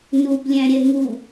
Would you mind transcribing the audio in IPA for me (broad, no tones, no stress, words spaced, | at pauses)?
nublʲæ̃ɾʲɛ ŋu